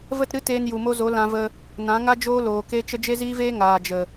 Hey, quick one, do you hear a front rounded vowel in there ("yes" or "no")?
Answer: no